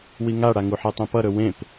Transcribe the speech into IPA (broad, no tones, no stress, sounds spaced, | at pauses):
w i ŋ a ɽ a ŋ u ħ ɛ tˤ ɛ̃ p ʌ ɾ ɵ w ẽ p